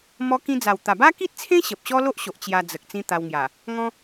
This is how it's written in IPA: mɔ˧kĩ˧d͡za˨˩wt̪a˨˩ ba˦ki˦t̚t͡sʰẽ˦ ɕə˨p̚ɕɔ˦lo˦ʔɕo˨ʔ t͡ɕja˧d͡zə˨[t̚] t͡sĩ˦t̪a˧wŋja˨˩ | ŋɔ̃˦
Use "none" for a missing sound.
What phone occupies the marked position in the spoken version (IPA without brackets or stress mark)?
k̚